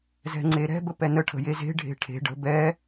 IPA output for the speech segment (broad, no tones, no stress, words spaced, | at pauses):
zɛ̤ŋ͡ǀeɾɛ̤ bəpɛnə ʈʰə̤jeze̤ ɖʱe̤ʈʰe̤ ɖə̤ bɛ